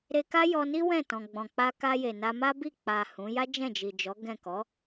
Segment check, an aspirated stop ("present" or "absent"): absent